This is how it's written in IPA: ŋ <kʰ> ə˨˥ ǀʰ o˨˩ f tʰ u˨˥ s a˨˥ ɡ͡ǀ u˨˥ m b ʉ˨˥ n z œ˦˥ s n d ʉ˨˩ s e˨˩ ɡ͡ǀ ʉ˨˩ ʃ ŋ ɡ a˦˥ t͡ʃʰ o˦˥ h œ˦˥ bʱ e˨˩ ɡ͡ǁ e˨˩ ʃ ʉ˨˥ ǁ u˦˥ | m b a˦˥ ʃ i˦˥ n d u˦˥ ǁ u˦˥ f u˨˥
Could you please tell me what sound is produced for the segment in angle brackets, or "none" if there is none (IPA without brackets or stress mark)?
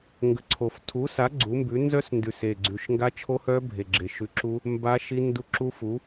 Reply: ɡ